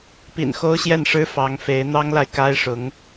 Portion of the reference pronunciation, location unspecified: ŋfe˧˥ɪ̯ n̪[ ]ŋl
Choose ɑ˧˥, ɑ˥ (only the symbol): ɑ˥